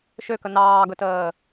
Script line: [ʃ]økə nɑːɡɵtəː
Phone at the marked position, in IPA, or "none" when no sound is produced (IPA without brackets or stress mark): ʃ